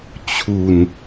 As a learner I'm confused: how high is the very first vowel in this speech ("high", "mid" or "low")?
high